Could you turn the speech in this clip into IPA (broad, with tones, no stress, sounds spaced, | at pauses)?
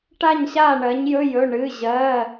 ʈ a˥˩ ɲ ɕ a˥˩ ɳ ɜ˩˥ ɲ j ɵ˧˥˧ j ɵ˩˧˩ ɳ ɨ˩˧˩ ʑ ɜ˩˧˩